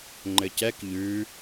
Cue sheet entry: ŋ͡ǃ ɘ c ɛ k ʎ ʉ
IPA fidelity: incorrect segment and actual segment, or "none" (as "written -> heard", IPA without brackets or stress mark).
none